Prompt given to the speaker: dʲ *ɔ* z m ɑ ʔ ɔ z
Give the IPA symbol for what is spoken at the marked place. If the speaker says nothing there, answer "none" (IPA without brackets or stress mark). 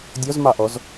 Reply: ɔ